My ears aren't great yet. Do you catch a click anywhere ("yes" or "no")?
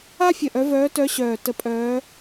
no